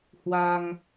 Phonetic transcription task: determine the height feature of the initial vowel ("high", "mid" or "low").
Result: low